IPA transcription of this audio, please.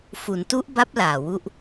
f u˩˦ n t u˦˥ ʔ b a˦˥ p̚ l aː˨˩ w u˥˩ ʔ

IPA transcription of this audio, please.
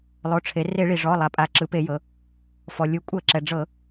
lˠ o˩˧˩ ʈ͡ʂʰ e˩˧ r e˧˩˧ ɭ i˩ ʐ ɔ˩˧˩ lˠ a˩ pʼ a˩˧ ǁ ɯ˩˧ p e˧˩˧ j ɤ˩˧ | f ɔ˩ lʲ u˩˧ kʷʼ ɤ˧˩˧ ǁ ɛ˩ ɖ͡ʐ ɤ˧˩˧

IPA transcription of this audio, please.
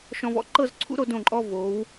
ʃ ɔ̃˧ v ɔ̰˥ ǃ ɤ˥˧ z ǀʰ ṵ˥ ɾ o˧ d õ˧˩ ǃʼ ɔ˧ v o˩˧ w

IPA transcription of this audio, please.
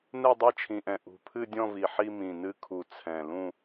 n ɛ˦˨ dˤ ɛ˦˨ t͡ʃʰ ĩ˨˩ ʔ ɛ̃˨˩ ʔ ṳ˨˩ pʰ ɨ˦˨ dʲ ɔ̃˦˨ v i˨˩ ħ i˦˨ m ĩ˨˩ n ɨ˦˨ kʰ u˨˩ t͡sʰ ɛ̃˨˩ l ũ˦˨

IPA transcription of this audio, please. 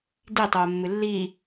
d i tˤ oː mː ɨ lː iː

